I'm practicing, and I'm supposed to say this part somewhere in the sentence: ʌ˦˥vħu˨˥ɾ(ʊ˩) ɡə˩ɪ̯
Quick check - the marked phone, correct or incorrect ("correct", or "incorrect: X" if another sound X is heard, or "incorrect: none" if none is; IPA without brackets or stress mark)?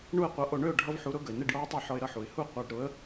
incorrect: ʊ˦˥